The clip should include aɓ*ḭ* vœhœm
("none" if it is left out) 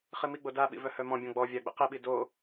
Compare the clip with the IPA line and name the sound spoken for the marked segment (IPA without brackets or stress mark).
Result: ḭ